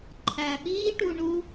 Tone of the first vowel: low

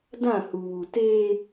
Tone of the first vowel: falling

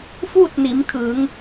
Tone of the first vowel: falling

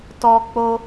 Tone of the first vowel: high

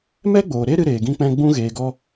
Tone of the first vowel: high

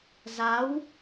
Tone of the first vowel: rising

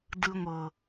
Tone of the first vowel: high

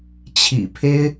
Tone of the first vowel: low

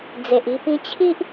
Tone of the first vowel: low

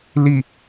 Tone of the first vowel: falling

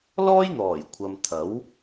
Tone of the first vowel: high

